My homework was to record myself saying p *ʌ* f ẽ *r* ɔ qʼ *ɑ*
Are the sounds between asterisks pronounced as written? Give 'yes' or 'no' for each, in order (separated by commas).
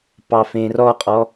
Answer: no, yes, no